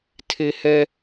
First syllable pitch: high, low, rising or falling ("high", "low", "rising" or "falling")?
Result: high